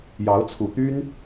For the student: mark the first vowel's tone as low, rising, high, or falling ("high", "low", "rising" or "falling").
rising